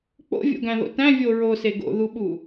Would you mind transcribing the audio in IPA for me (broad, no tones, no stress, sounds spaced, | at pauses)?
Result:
k͡p o̰ vʲ o̰ ɡ æ̃ ð o̰ t æ̃ vʲ o ɹ o s e ɡ o̰ ð u ɓ u